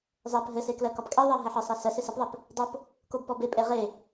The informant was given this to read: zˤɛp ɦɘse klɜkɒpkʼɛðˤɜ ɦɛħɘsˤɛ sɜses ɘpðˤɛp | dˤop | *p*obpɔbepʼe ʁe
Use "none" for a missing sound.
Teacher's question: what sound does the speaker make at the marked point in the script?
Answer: k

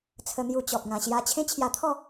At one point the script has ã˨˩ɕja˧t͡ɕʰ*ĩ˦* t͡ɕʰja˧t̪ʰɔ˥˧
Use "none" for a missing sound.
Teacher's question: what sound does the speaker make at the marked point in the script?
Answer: ẽ˦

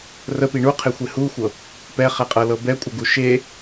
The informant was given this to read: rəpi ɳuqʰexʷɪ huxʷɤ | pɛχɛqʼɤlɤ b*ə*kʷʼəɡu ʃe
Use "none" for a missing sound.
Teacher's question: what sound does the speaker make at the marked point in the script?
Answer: ɛ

